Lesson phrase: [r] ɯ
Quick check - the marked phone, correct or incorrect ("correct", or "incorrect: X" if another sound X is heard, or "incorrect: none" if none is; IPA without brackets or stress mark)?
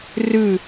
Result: correct